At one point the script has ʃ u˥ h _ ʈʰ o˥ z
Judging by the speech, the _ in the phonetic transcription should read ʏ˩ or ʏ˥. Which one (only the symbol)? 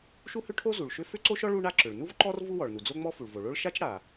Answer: ʏ˥